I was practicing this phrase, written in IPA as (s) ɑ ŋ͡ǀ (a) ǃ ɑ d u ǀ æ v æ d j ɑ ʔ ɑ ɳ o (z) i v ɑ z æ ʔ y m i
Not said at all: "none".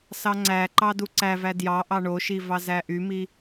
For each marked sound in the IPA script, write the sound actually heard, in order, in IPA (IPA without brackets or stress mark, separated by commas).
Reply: s, æ, ʃ